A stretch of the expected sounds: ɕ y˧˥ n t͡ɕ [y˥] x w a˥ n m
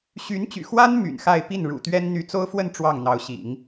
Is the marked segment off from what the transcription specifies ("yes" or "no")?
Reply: yes